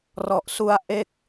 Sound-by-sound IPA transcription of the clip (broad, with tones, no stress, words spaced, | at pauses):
rɔ˨˩ʔsu˧a̯ ʔe˥˩k̚